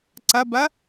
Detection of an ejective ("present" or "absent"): absent